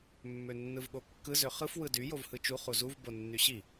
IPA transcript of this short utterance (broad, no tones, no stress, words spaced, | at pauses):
mːønːɯvɠokːɯ zøχɯf wɯdy jovhɯt͡ʃu χuzuv bonːyɕi